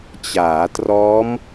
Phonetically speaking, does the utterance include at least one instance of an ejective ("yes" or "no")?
no